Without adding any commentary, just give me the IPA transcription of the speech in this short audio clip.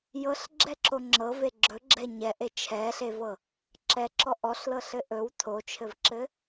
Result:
j ɤ ɬ ɡ͡ǁ ɛ ǁ o ŋ͡ǁ ɤ v e ɡ͡ǁ ɵ ɡ͡ǁ ɛ ɲ ɛ ʔ e t͡ʃʰ ɛ ɬ e v ɤ | ǁ ɛ ǁ ɔ ʔ ɔ ɬ l ɤ ɬ ɘ ʔ ɵ w tʰ o t͡ʃʰ ɘ v ǁ ɘ

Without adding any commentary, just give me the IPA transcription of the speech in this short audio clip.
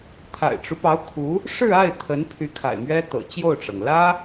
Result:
t̪ʰ a̰˨˩ ɪ̯ ʈ͡ʂ u˦ p ɑ˧˥ ʊ̯ kʰ u˧˥ | ʂ ɻ̩˥˧ a˥˩ ɪ̯ t̪ʰ ə˧˥ n pʰ y˧˥ kʰ a̰˨˩ ɪ̯ m ɥ ɛ˥ t̪ ɤ̰˨˩ t͡ɕ j o˥˩ ʊ̯ ʈ͡ʂ ɤ˩ ŋ l ä˥

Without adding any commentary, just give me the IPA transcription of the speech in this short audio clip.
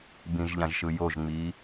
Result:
b ĩ ʒ ʎ ã ʒ ʃ ɯ j o ʒ ŋ͡m iː

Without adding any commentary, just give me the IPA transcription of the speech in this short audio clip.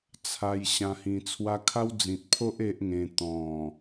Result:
t͡sʰ a˧ j ɕ ã˧ h ĩ˧ t͡sʰ w a˦ kʰ a˦ w d͡z ĩ˨ t̚ pʰ o˦ ʔ e˦ ʔ ŋ ẽ˧ t̪ ɔ̃˨˩

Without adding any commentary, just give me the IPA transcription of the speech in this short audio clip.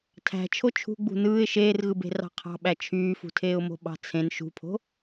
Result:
tʰ æ̤ t͡ʃʰ o t͡ʃʰ ṳ ɡ͡b ṳ n ɯː ɪ̯ ʃ eː r ɣ ɯ b e̤ r ɑ̤ qʰ ɑ̤ ɓ æ t͡ʃʰ yː f ṳ tʰ eː ʊ̯ m o̤ ɓ ɑ̤ t͡sʰ ẽ n ʃ ṳ pʰ o̤

